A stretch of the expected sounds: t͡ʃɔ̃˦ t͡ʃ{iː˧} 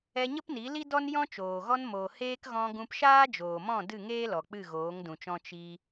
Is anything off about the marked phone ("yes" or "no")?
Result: yes